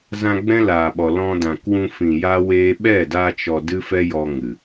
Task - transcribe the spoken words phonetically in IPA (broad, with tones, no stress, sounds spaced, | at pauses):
z ã˧ ɡ͡b ɛ̃˦ l aː˨ ɓ ɔ˨ l ɔ̃˧ d ã˨ k w ũ˧ f ĩ˨ j a˦ w eː˦ ɓ ɛ˦˨ d aː˧ t͡ʃ ɔ˨ d ɨ˦ f ɛ˦ j ɔ˧ ŋ ɨ˨